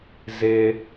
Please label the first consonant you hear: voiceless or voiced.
voiced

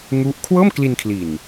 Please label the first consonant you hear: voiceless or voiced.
voiced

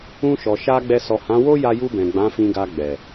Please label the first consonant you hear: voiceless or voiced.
voiceless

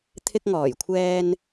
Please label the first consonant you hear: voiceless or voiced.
voiceless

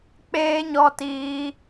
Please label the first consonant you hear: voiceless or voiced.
voiceless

